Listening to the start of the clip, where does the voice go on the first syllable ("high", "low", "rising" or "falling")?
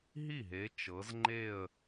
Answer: falling